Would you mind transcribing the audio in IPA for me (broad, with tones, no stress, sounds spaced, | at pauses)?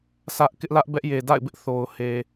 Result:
sʰ ä˦ ʔ k ɪ˦ ʔ l ä˦ ʔ b ɛ˦ ʔ j e˨ d a̰˦˨ ɪ̯ b ɪ˦ ʔ θ o˨ ʊ̯ h e˨